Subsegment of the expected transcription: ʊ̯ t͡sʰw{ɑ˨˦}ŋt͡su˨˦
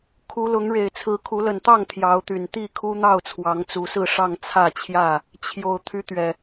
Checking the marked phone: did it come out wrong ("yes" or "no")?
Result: no